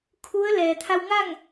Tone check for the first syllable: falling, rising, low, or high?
rising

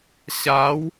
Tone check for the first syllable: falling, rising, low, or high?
rising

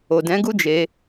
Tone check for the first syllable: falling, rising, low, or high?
low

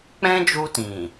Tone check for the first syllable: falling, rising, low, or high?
high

